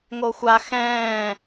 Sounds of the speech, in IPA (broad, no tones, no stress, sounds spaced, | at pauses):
ŋ o xʷ a x ɛ̃ː